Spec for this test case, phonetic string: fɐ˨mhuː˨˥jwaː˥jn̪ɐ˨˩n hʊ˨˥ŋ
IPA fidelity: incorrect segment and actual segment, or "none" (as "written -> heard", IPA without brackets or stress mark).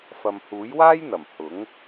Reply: n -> m